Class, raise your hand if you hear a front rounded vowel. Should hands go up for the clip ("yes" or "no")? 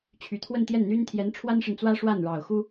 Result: yes